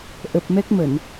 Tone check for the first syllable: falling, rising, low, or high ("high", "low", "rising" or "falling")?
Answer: low